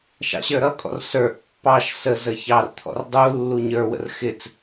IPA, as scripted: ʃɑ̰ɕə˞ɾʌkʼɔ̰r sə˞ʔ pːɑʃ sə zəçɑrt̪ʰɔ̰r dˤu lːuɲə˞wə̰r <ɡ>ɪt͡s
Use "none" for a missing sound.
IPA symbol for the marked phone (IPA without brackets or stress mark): x